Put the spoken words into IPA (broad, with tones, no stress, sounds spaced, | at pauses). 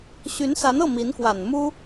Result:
ɕ y˧˥ n s a˧˥ n ɤ˥˩ m i˧˥ n k w a˨˩ n m u˥